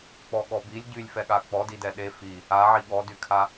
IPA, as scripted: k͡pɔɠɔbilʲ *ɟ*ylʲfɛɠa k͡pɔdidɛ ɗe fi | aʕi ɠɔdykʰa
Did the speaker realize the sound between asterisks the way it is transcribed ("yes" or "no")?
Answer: yes